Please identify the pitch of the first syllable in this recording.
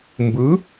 rising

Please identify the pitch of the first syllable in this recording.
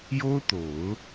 high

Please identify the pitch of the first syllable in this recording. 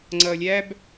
low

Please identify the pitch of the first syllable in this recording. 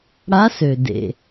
rising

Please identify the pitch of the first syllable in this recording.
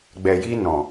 low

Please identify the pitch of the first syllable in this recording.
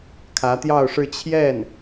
rising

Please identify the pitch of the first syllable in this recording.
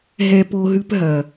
high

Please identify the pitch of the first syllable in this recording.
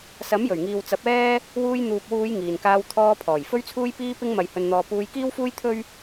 rising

